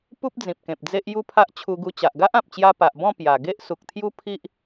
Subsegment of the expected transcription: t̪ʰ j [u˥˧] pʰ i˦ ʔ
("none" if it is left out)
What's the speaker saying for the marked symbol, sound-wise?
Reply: u˦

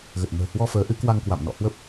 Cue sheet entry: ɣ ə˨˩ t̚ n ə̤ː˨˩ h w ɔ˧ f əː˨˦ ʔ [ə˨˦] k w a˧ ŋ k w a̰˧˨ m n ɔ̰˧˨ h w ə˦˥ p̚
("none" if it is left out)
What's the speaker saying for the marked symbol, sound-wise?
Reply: ɨ˨˦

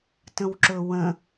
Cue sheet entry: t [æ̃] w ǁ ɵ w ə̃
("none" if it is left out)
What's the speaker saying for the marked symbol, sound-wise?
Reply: ə̃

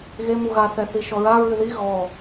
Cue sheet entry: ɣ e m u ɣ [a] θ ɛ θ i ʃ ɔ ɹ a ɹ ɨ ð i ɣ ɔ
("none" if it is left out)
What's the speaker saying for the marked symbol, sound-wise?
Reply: a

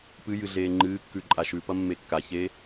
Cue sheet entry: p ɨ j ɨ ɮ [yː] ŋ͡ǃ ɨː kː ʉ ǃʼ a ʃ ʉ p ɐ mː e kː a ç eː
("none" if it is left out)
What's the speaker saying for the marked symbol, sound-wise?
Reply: eː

